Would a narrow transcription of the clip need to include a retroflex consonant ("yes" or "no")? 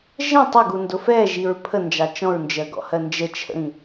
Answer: no